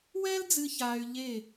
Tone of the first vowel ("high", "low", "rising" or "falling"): high